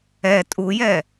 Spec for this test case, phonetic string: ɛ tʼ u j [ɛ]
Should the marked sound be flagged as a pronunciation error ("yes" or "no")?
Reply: no